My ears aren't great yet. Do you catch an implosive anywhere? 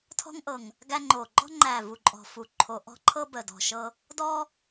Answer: no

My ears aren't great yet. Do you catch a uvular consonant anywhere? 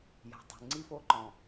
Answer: no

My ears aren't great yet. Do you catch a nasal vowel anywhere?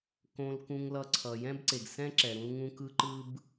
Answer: yes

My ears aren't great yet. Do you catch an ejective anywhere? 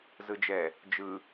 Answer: no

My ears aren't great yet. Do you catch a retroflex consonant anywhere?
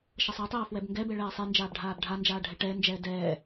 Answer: yes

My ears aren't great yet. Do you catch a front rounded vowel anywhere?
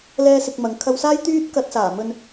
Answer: yes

